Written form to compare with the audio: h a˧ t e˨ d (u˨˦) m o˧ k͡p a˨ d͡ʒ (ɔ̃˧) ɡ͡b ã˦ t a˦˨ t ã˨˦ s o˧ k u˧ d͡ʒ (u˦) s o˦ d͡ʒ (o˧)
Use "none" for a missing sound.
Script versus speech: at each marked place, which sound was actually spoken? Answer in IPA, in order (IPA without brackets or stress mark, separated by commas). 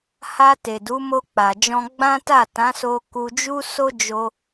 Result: u˨˦, ɔ̃˧, u˦, o˧